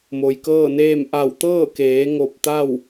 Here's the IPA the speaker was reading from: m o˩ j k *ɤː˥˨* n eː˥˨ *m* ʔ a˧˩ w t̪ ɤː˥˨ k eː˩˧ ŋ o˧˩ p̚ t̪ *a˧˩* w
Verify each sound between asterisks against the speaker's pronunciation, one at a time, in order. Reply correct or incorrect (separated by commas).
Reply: correct, correct, incorrect